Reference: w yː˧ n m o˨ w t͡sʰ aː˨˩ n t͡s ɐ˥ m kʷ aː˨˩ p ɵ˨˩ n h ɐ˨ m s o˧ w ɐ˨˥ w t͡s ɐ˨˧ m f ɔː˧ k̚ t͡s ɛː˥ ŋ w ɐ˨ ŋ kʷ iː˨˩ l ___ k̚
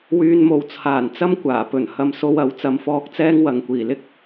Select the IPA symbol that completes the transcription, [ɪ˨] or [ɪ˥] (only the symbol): ɪ˥